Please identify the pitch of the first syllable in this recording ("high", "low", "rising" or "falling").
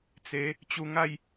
rising